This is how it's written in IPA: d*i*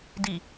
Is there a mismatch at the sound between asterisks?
no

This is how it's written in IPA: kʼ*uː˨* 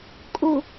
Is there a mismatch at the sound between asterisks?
yes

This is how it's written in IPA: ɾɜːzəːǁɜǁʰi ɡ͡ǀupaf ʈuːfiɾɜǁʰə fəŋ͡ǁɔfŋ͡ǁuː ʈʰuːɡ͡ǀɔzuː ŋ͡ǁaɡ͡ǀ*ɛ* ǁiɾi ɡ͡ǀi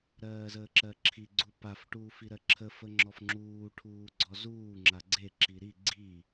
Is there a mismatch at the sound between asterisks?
yes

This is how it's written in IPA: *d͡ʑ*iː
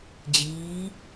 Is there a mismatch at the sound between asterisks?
no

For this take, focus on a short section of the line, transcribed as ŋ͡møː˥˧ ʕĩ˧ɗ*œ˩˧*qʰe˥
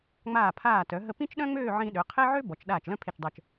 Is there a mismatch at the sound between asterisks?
yes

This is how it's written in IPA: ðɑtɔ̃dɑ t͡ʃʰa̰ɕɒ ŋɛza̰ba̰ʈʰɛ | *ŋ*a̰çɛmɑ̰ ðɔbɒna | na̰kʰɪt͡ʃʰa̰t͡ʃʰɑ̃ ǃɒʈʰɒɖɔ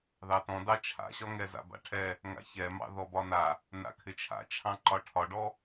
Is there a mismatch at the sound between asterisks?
no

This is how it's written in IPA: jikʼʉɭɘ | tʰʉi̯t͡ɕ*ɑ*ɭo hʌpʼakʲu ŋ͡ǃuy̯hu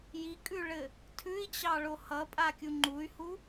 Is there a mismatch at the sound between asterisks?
no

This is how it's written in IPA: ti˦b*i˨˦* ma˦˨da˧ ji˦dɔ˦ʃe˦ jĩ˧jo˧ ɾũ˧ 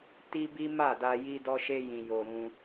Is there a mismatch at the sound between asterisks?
yes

